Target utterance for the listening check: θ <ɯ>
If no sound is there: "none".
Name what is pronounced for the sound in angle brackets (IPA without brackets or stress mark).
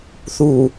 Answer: u